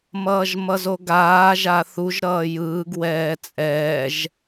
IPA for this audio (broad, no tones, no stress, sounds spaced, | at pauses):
m ʌː ʒ m ʌ z o ɡ aː ʒ a θ u ʒ ɾ ʌː j ɯː ɡ w ɛː t͡sʼ ɛː ʒ